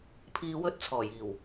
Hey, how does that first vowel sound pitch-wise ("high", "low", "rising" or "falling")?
low